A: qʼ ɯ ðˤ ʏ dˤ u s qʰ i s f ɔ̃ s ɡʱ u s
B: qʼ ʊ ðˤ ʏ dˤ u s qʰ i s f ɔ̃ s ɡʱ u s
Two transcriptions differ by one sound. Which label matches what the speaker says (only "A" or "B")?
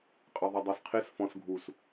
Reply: A